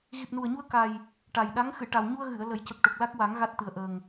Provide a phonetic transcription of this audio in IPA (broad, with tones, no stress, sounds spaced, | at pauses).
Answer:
ɣ i˨˩ p̚ n u˨˩ ə̯ ɲ u˧ ə̯ k a˨˩ j | ʈ a˨˩ j ɗ a˧˥ ŋ x ɨ˨˩˨ ʈ a˨˩ w ɲ u˧ ə̯ ɣ ɨ˨˩˨ ə̯ l ə˨˩˦ j c ə˨˩ k̚ ʈ o˨˩ k̚ l a˦˥ k̚ w a˨˩˦ ŋ ɣ a˦˥ t̚ t̪ ɨ˨˩ ə̯ ʔ əː˨˩ ŋ